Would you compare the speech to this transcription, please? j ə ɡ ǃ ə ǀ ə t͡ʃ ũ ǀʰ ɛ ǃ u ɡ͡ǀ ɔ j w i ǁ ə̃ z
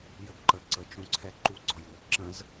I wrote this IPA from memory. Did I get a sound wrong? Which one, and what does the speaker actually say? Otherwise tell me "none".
none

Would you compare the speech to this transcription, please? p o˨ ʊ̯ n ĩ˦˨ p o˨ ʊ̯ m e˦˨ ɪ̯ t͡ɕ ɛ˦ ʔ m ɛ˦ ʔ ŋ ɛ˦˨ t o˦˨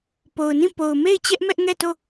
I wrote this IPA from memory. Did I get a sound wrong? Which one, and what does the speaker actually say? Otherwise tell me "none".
none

